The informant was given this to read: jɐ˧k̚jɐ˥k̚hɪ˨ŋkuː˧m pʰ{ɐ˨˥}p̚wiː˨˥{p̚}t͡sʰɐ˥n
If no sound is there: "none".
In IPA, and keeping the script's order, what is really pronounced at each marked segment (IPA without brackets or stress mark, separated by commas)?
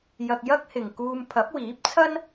ɐ˨˥, p̚